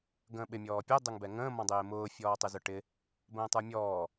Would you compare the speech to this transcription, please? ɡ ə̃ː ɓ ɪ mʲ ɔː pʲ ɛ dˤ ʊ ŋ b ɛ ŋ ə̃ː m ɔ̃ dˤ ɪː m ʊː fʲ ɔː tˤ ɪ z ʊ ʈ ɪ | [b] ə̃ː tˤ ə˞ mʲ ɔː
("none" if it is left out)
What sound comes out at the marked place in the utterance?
b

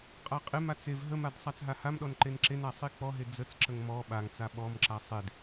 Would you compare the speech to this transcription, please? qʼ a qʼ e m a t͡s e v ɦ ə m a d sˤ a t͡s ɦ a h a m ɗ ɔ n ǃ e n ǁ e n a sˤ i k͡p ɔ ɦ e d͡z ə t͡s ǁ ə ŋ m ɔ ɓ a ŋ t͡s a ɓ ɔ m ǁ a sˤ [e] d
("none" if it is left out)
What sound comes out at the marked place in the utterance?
e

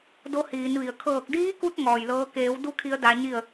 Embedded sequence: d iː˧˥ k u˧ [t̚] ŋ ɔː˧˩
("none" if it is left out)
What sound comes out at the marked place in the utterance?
t̚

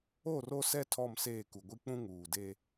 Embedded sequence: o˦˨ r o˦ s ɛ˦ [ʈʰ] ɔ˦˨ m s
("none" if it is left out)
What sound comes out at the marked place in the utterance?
tʰ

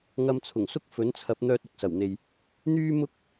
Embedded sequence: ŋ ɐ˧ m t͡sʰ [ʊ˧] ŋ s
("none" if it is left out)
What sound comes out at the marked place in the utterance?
ʊ˨˩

